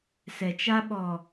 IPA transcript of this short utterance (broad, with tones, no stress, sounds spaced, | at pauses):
s ɛ˨ t͡ʃ a˦ ɓ ɔ˨